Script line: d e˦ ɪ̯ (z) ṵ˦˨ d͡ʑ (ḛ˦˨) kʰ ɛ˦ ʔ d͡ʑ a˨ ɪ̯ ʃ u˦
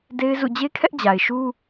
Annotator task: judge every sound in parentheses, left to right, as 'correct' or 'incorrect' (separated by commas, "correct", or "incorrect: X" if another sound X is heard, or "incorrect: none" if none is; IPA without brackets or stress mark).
correct, incorrect: e˦